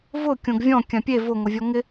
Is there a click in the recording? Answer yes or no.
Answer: no